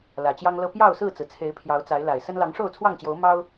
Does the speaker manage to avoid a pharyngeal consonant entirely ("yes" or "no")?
yes